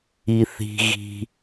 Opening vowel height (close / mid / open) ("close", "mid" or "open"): close